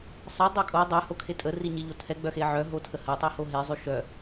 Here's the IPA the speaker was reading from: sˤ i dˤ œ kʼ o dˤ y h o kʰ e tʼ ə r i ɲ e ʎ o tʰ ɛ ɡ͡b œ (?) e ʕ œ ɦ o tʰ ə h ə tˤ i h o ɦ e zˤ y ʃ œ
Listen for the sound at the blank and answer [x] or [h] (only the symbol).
x